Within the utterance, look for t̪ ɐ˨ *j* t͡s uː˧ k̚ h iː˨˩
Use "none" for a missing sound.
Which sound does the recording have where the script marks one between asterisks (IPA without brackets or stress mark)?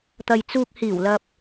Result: j